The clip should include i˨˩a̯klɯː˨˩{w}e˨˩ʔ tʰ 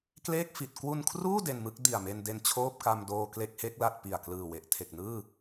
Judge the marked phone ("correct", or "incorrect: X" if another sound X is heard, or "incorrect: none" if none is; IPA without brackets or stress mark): correct